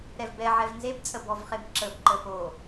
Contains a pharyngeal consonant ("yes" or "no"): yes